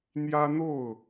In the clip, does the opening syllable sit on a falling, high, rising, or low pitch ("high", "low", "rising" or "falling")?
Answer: high